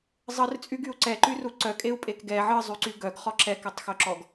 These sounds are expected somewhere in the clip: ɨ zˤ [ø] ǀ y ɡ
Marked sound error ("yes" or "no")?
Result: yes